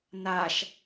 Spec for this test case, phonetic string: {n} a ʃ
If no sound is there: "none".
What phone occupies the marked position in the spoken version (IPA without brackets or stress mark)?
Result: n